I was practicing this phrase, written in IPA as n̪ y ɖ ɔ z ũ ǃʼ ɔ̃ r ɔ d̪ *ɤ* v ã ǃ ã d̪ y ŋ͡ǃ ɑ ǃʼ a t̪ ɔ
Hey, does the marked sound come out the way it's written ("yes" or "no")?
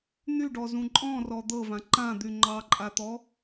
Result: yes